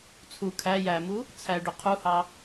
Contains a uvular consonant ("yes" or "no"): yes